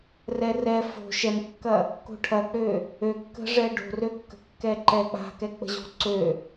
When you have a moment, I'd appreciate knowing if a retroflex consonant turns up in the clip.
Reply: yes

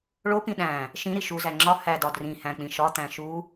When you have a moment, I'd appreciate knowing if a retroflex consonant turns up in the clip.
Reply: yes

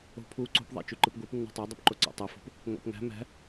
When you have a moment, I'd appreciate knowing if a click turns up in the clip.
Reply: yes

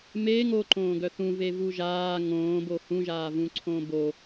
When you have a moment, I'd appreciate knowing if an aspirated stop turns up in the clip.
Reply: yes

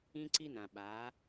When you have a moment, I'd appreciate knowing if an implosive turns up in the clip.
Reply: yes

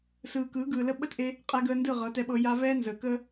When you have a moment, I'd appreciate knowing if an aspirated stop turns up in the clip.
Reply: no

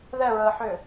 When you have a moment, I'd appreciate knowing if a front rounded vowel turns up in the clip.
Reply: yes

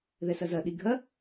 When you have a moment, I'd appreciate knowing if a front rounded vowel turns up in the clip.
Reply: no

